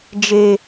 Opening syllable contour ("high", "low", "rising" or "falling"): high